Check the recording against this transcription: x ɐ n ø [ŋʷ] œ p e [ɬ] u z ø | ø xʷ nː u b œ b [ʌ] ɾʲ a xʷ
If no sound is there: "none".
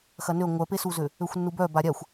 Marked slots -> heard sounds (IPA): ŋʷ, s, a

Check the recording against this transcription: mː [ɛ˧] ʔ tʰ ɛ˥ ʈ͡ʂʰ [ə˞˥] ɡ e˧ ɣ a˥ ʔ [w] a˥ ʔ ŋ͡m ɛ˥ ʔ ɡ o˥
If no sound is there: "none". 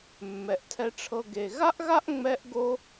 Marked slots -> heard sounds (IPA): ɛ˧, ɤ˥, ɣ

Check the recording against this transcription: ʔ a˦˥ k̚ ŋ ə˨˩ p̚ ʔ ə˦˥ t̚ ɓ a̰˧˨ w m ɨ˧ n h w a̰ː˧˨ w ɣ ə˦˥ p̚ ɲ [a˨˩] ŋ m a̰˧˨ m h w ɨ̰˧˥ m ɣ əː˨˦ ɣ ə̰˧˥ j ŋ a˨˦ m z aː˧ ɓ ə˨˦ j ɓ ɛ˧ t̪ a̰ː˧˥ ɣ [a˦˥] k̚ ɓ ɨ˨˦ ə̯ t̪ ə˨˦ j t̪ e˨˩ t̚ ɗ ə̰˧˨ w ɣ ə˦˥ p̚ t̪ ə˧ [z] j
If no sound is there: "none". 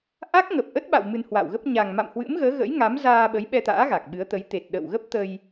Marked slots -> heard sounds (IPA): a˨˩, a˨˩, none

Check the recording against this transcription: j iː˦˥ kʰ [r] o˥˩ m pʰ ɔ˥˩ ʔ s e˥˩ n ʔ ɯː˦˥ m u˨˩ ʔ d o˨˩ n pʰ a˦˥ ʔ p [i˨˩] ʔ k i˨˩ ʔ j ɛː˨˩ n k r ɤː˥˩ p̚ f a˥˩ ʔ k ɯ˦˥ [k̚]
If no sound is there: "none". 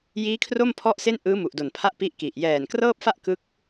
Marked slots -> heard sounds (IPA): r, i˦˥, k̚

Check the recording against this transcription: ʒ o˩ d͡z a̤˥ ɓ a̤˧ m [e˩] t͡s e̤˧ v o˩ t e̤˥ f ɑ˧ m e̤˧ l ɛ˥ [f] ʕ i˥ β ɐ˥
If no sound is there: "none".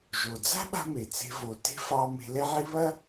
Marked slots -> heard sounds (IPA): e˩, none

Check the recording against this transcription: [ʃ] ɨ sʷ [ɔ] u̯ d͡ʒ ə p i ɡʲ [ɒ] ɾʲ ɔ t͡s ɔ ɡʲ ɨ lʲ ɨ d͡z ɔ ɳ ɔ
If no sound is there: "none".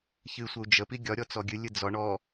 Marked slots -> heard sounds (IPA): ç, ə, ɒ

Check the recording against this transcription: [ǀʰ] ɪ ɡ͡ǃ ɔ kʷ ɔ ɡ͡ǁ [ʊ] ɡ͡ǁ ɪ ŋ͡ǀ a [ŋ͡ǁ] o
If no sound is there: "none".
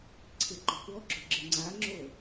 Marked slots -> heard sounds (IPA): ǀʰ, ʊ, ŋ͡ǁ

